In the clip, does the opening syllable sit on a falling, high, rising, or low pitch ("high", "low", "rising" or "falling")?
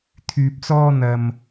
low